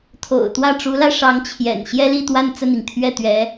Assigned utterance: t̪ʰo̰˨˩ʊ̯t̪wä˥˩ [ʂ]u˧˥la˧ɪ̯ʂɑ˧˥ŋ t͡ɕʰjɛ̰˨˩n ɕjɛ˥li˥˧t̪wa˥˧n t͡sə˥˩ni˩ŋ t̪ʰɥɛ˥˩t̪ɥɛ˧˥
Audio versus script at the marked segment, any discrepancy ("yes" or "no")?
yes